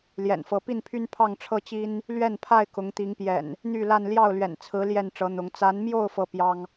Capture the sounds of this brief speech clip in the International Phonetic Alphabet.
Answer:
l j ɛ̰˨˩ n f ɤ˨˦ p i˥˨ n pʰ y˦ n pʰ ɑ˥˨ ŋ ʈ͡ʂʰ ɤ˦ t͡ɕ i˦ n | l ɥ ɛ˥˨ n pʰ a˥˨ ɪ̯ k ʊ˨˦ ŋ t̪ i˨˦ ŋ p j ɛ̰˨˩ n | n̪ y˥˨ l a˥˨ n l j ɑ˥˨ ʊ̯ l ɥ ɛ̰˨˩ n t͡sʰ ɹ̩˨˦ l j ɛ˥˨ n ʈ͡ʂ ɤ˨˦ n̪ ʊ˨˦ ŋ t͡s a˨˦ n m j o˥˨ ʊ̯ f ɤ˥˨ p j ɑ˦ ŋ

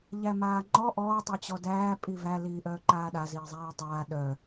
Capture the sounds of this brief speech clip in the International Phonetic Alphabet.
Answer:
ʎ æ m aː ŋ͡ǃ ɔ ʔ ɔː tˤ œ t͡ɕ ɔ d æː pʼ i v æ l iː ʔ œː ǃ aː ɗ a z iː zˤ æː tˤ aː ɗ œ

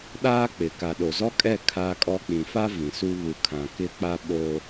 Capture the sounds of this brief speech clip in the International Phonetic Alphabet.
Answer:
ɗ aː˦ k͡p ɪ˨ k a˨ ɗ o˨ z ɔ˦ kʼ ɛ˦˨ kʰ aː˦ kʼ ɔ˦ k͡p ĩ˨ f a˦ v ĩ˨ s u˦ β u˨ kʰ ã˨ k ɪ˦ k͡p a˦ ɓ o˦

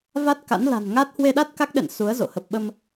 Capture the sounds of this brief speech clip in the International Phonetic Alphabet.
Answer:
v a˦˥ t̚ k a̰˧˥ n l a̤˨˩ n ŋ a˦˥ t̚ h w e˧ ɗ a˦˥ t̚ k a˦˥ k̚ ɗ ɛ̰˧˨ n s u˨˦ ə̯ z o̰˧˨ h ə˨˩ p̚ ɓ ə˧ m

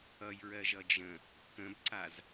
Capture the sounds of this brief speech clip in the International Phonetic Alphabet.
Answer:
ʌ j ɹ ɜ ʒ ʌ d͡ʒ ə̃ | k ə̃ b ǀ a z

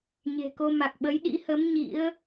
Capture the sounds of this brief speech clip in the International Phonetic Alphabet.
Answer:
ɲ e̤˨˩ k o˧ m a˨˩ k̚ ɓ ə˨˦ j ɗ ḭ˧˥ h ə˨˦ m ɲ ḭ˧˥ ə̯

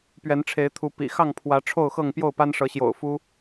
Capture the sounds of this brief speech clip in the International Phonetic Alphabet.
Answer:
p ɥ ɛ˨˦ n ʈ͡ʂʰ e˨˦ ɪ̯ t̪ʰ u˨˦ p ḭ˨˩ x ɑ˥˨ ŋ pʰ w ä˨˦ ʈ͡ʂʰ o˥˨ ʊ̯ x ɤ˥˨ ŋ p j o˥˨ ʊ̯ p a˦ n ʂ ɤ˨˦ ɕ j o̰˨˩ ʊ̯ f u˦

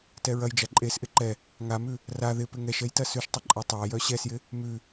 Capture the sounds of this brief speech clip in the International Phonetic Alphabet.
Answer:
t ɛ ɹ ɐ j d͡ʒ a ǃʼ e s ʔ ɪ ǃ ɛ | ŋ a m ʉ | r a ð ɪ p ɪ ŋ ɛ ʃ ɛ j t ɐ s ʉ ʃ tˤ ɪ ǃʼ a tˤ a j œ ɕ ɛ s j ɪ | m ʉ

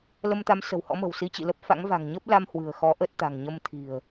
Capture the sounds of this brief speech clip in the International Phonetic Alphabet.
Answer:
l ə˧ m t̪ a˨˦ m s ə̤˨˩ w h ɔ̰˧˥ m ə̤˨˩ w s i˨˦ t͡ɕ ḭ˧˨ l ə˦˥ p̚ f a̰˧˥ ŋ v a̤˨˩ ŋ ɲ ə˦˥ p̚ l a˧ m h w ɨ̤˨˩ ə̯ x ɔ˨˦ ʔ ə˦˥ t̚ t̪ a̤˨˩ ŋ ɲ ə˧ m t̪ʰ i̤˨˩ ə̯

